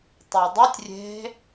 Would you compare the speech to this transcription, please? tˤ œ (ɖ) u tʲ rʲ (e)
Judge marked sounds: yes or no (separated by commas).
no, no